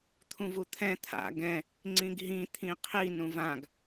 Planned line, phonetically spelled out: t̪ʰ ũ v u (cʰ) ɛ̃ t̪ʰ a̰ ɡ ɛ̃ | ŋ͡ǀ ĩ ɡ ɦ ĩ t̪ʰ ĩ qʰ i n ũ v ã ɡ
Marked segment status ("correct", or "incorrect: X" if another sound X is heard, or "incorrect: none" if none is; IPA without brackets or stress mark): incorrect: t̪ʰ